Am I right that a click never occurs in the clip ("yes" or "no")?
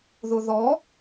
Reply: yes